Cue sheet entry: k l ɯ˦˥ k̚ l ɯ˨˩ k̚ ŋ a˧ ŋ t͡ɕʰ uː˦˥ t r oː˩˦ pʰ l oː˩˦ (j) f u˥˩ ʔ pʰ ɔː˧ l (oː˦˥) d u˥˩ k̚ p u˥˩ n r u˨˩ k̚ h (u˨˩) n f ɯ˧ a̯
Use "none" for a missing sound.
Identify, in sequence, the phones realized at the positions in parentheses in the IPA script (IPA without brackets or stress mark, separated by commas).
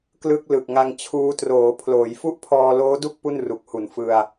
j, oː˦˥, u˨˩